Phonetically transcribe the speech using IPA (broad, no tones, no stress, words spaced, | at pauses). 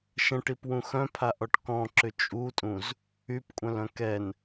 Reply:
ʃɐ̃ʈipwũ xœ̃pʰaʔɔʈ kɔ̃ǁʏ t͡ʃʼutʼũz | ypkʷʼœ̃lœ̃ kɛn